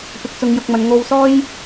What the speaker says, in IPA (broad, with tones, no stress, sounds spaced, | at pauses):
p ɪ˧ k̚ t͡s ʊ˧ ŋ j ʊ˧ k̚ m ɐ˨˧ n ŋ o˧ w s ɔː˥ j